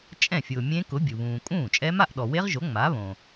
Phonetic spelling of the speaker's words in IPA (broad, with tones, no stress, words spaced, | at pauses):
t͡ʃʼɛ̃˥˩fʲʊː˨ mʲẽ˦˥kʊ˨˥ bʲu˨ βũː˨ kʼũː˥˩t͡ʃʼɛ˦˥ ma˥˧ʔɗɔ˨we˦˥ʁʒo˨˥ ŋ͡ma˨˥βõ˨